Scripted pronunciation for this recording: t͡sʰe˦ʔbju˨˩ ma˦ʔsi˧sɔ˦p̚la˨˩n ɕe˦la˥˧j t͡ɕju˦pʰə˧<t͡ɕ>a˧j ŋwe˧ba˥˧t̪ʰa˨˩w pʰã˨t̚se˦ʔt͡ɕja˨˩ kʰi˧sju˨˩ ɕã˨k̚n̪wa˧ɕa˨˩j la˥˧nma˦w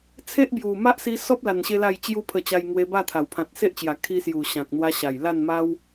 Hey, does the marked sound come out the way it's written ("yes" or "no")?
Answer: yes